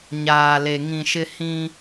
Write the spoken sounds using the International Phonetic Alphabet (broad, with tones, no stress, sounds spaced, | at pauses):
ɲ aː˨ l e˨ ŋ ĩ˨ ʃ ɪ˦ h ĩ˦